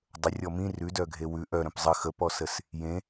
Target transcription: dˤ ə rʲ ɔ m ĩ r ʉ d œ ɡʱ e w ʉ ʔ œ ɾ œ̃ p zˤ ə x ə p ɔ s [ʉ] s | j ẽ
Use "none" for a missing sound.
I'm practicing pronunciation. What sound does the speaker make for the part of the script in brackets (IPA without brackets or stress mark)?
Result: ə